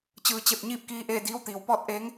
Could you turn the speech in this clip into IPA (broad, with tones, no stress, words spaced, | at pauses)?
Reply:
t͡ɕɯː˩˧t͡ɕe˧˩p̚ ɲiː˥˨p̚kiː˧˥ʔeː˥˨ diː˧˥wt̪iː˩˧w pɔː˥˨t̚ʔeː˧˥ŋ